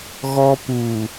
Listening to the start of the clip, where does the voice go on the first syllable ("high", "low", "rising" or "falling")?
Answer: high